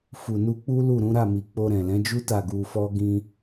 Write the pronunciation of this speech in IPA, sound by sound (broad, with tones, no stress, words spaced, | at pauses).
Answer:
fu˨nu˧k͡pu˦ lu˦˨ɾũ˨˦ɾa˦˨mi˨ k͡po˧ɾɛ̃˨lɛ̃˨˦d͡ʒu˦ ta˦˨ɡu˧fɔ˦ ɡĩ˧